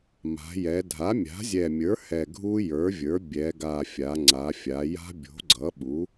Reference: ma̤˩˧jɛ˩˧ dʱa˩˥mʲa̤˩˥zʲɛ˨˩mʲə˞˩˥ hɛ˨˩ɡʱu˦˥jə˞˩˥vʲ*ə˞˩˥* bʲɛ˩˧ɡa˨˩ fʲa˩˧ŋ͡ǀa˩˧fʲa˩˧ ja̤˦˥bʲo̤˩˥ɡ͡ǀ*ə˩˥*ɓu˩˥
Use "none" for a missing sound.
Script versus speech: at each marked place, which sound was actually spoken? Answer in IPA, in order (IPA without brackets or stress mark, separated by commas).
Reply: ə˞˩˥, ʌ˩˥